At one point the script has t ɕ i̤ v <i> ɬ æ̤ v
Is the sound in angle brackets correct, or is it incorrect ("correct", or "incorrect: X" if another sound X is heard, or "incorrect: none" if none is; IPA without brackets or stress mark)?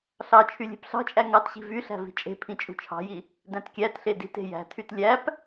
incorrect: y